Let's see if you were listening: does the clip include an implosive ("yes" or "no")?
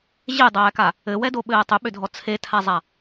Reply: yes